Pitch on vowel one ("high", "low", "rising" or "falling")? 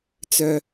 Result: high